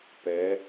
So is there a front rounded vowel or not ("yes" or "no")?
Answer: no